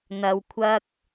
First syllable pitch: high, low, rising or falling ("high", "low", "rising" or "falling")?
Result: low